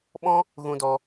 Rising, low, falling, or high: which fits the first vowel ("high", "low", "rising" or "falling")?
high